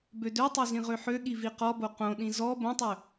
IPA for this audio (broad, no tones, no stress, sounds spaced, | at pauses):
b ø d ø tˤ o z ĩ ʁ ø ħ ø ɠ i v i q ɔ b o q õ ɗ ĩ z ɔ b õ tˤ ø